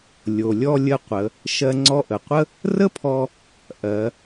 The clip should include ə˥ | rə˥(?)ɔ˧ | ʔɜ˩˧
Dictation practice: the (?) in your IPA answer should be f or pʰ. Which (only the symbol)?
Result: pʰ